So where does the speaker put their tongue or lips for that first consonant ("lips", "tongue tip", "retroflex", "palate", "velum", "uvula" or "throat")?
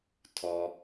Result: tongue tip